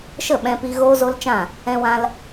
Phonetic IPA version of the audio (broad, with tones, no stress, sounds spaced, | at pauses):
ʃ ə˦˨ ɓ ɛ̃˧ p i˧ ɣ oː˦ z o˦ l t͡ʃ ã˦˨ | ɛ̃˧ w ã˧ l